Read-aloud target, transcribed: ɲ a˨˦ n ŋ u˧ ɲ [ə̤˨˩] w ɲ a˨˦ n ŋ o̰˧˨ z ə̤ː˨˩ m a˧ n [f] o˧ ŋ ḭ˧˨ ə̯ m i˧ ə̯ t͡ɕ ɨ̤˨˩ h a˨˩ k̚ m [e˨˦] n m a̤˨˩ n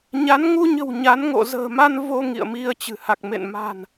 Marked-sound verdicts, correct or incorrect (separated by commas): correct, incorrect, incorrect